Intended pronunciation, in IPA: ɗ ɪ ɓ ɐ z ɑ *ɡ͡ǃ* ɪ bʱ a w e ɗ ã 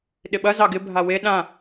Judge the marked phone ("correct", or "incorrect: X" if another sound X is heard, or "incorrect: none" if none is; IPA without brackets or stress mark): incorrect: ɡ